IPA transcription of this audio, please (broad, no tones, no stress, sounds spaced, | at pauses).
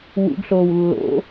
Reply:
w ṵ ɡ ɬ oː w lː o̰